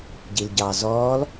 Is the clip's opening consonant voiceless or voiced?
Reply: voiced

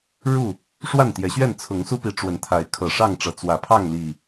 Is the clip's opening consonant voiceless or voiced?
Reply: voiced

